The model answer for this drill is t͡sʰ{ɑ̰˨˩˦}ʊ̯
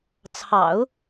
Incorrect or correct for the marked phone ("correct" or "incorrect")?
correct